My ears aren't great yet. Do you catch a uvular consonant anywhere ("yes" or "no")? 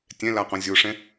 yes